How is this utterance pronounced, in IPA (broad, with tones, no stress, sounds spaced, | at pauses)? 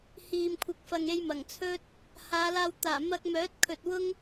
h iː˨ m kʷʰ ɪ˨˥ k̚ f ɐ˨ ŋ e˧ j m ɐ˨˩ ŋ t͡sʰ ɵ˥ t̚ | h aː˨˧ l aː˧ w t̪ aː˨˩ m ɐ˧ k̚ m œː˨˥ t̚ kʰ ɵ˨ t̚ w ʊ˥ ŋ